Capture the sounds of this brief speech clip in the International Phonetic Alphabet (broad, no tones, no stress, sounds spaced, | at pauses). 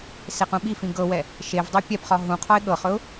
s e q ũ ɓ i f ĩ ɡ ɤ w ɛ | ʃ e v dˤ i pʲ ɛ p χ ɒ ɦ ũ qʰ ɒ ɪ̯ ɠ ɤ χ ɵ ʊ̯